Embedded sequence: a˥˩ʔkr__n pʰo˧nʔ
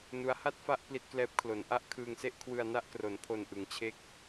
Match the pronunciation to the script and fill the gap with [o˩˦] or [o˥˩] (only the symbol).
o˩˦